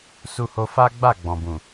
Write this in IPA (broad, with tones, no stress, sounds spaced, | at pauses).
s u˧ h o˧ f a˦ ɡ͡b a˦˨ ɡ͡b ɔ̃˨ b ũ˨